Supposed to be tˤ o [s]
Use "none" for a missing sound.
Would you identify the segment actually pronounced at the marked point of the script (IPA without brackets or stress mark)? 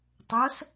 s